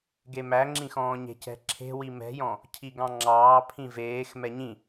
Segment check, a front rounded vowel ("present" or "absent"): absent